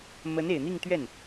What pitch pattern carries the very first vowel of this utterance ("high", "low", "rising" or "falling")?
rising